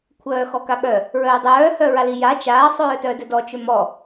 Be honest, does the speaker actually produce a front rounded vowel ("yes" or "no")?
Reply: yes